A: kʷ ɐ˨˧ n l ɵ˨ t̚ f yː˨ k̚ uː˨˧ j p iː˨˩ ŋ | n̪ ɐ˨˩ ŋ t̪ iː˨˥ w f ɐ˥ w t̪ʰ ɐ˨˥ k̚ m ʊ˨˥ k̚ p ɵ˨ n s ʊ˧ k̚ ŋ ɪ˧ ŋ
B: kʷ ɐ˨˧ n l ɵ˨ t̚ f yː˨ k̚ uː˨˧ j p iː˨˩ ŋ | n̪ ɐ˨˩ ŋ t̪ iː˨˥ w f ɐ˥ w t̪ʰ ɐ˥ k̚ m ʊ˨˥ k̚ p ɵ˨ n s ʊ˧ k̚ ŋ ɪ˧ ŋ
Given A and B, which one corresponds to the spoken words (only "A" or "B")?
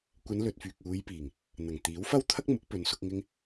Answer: B